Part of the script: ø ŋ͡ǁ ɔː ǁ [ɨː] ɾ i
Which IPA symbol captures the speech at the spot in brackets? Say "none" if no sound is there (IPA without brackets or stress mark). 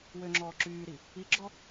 yː